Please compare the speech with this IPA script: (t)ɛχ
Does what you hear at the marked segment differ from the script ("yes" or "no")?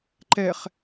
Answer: yes